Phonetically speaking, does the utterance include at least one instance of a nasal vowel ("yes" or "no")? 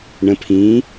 yes